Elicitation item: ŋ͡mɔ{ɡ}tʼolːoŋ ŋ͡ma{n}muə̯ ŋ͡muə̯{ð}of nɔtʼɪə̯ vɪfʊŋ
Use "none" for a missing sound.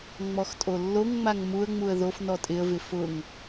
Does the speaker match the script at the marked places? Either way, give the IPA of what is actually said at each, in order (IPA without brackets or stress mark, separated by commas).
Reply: x, ŋ, ð